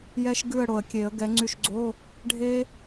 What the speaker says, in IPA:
jɛ˦˥ʃ ɡʉ˦˨ə̯ ɽo˨˩ə̯kʲe˨˩˦ə̯ ɡɛ˨˦ŋ͡ǀy˦˨ʃɡ͡ǀo˧˥˧ | ɖʱe˦˥

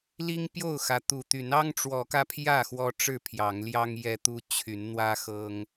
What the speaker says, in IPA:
li˦ŋpjo˥˨ʊ̯xä˨˦ t̪u˨˩t̪y˨˦n ɑ˦ŋʈ͡ʂwɔ˨˦kä˧ pʰjä˥˨ xwɔ˦ʈ͡ʂɻ̩˥˨pʰjɑ˨˦ŋljɑ˦ŋ jɛ˦t̪u˦ t͡ɕʰy˨˦nn̪wä˦xɤ˦ŋ

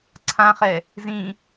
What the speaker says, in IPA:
ǀʰãχɛ | zĩ

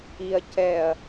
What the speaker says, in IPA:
iɐ̯ cɛɐ̯

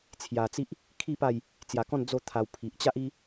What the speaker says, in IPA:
t͡sʰja˧t͡si˦ʔ | kʰi˥˧pa˥˧j | t͡sja˧kɔ̃˥˧n d͡zo˥˧t̪ʰa˧w pʰi˨ʔt͡ɕa˦ʔi˦

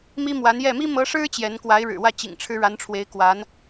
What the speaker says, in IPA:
mi˥mwa˧˥njɛ˥˩ mi˥mɤ˧˥ʂɻ̩˥ t͡ɕjɛ˧˥n kwa˧˥ɪ̯ ɻɻ̩˨˩wä˥˩ t͡ɕḭ˨˩ŋ ʈ͡ʂʰɻ̩˥ɻa˧˥nʈ͡ʂʰwe˧˥ɪ̯ kwa˧˥n

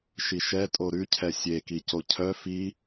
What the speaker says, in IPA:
ʃiʃɛtʼo ɾʉcʰɛ sʲe kicocʰœ fi

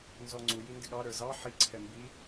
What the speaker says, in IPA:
nzɔŋ͡ǀu jindɪɠɑ ɾə˞zɑ ħi ǀʰɛmbi

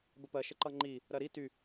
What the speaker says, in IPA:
bəpɜʃəǃʌ ŋ͡ǃi | ɾɜɾi ty

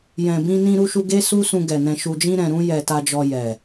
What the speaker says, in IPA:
jɛ̃˨ bĩ˧nĩ˧ɾu˧ʃu˧ ɡe˦su˦sũ˧ ɡɛ˨nɛ̃˧ʃu˧ d͡ʒĩ˧ɾɛ̃˨ɾũ˧ jɛ˨ ta˧d͡ʒɔ˧jɛ˨

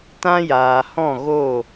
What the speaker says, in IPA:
tã˦jaː˨hɔ̃˦˨ ɣo˦˨

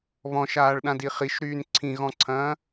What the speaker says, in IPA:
βɔ̃ʃaːɭɗãdi χiʃɾyːn ǀʰĩɣɔ̃ǀʰɐ̃ː

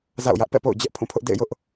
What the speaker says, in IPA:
za̰˦˨ʊ̯jä˦ʔ pɛ̰˦˨po̰˦˨ʊ̯d͡ʑɛ˦ʔ pʰũ˦˨pʰʊ˦ʔ dḛ˦˨ɪ̯jʊ˦ʔ

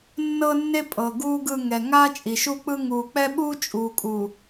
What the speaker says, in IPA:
nːɤ˦nːe˦ pʼɤ˨ɡuː˦ɡɯ˦˨ ŋɛ˨ ŋa˦ t͡ʃʼi˨ʃu˦k͡pɯ˦ ŋuː˨k͡pɛ˦ɓuː˦ t͡ʃʼuː˨kʼu˨

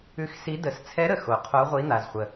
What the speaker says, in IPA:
ʉ˧˥xsi˧˥ də˧˥s t͡sʰɛ˧˥ɾə˨ xo˨qʰo˧˥ ʁʷi˧˥n̪a˨zχʷə˨

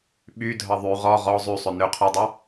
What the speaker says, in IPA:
ɓydʱʌ ðˤy ʁɔ ʁɔ zˤysˤʏ nʏ qʰʏdˤʌ

